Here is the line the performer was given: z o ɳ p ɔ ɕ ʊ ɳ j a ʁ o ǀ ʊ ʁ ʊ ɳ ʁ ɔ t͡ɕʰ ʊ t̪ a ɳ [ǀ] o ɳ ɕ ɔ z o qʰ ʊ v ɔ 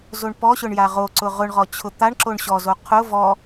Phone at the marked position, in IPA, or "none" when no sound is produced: ǁ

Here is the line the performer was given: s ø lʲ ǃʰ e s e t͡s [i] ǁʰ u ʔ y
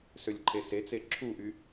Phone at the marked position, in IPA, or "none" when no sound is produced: e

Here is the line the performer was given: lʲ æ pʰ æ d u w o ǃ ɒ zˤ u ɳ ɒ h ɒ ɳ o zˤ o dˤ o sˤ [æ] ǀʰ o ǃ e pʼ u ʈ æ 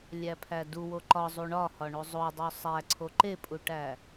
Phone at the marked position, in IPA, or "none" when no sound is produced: æ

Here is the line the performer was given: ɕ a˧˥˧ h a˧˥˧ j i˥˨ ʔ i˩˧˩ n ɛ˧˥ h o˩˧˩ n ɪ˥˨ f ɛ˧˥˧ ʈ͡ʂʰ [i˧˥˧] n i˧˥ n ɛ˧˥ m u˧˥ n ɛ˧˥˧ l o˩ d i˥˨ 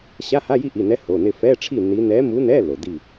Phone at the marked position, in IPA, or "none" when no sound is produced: i˥˨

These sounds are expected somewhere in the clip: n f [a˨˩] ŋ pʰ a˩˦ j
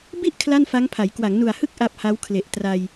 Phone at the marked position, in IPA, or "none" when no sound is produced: a˦˥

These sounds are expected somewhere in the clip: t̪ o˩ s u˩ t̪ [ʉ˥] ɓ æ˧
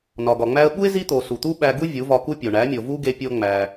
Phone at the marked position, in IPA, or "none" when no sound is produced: u˥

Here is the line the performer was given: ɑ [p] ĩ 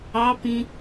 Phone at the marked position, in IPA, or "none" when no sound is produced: p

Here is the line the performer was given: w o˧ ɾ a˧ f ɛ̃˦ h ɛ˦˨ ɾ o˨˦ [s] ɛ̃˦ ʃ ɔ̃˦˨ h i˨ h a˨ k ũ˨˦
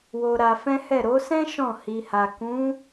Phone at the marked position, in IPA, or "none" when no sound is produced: s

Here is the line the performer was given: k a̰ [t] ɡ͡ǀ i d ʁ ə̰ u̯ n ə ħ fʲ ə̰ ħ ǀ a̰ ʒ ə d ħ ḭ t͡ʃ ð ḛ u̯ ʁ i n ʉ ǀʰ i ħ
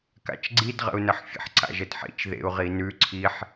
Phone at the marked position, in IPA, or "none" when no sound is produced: t͡ʃ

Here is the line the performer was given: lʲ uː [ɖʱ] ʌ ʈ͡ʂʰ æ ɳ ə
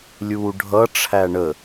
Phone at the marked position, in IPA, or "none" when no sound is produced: ɖʱ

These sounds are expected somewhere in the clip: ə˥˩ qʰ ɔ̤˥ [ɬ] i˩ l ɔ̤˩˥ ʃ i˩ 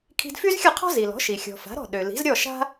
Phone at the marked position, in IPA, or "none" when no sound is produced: z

